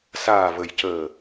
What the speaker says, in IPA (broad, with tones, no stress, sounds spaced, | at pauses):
s aː˨˩ v ə˨˩ j c əː˨˩